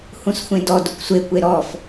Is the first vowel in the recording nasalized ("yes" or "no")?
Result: yes